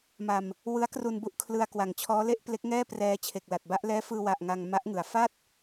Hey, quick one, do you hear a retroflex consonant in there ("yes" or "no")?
no